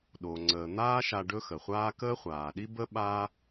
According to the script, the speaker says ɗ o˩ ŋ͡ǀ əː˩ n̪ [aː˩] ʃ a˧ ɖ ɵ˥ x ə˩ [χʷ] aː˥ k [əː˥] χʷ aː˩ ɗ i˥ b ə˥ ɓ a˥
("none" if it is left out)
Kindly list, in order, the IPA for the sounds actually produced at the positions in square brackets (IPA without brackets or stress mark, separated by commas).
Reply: aː˥, χʷ, əː˥